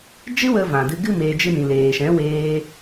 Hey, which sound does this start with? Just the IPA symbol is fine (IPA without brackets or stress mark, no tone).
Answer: d͡ʒ